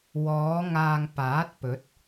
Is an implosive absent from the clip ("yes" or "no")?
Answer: yes